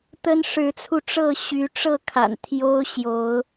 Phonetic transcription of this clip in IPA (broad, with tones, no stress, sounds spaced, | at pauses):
t̪ ə˦ n ʂ ɻ̩˨˦ t͡sʰ u˧ ʈ͡ʂ ɤ˥˨ ɕ y˨˦ ʈ͡ʂ ɤ˥˨ kʰ a̰˨˩ n t̪ʰ j o˦ ʊ̯ ɕ j o˨˦ ʊ̯